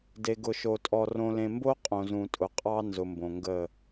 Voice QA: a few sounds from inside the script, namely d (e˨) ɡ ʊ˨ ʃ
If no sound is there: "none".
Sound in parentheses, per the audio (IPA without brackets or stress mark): e˨